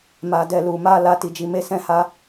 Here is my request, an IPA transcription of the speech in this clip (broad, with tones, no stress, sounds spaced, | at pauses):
m a˧ d ɛ˧ l u˨ m a˧ l a˧ t i˨ d͡ʒ i˨˦ m e˧ s ɛ̃˦ h a˦